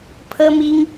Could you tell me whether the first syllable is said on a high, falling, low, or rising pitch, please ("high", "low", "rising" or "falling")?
high